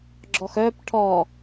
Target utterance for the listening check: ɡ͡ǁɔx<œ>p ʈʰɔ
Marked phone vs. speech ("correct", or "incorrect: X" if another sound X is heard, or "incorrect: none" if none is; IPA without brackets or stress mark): correct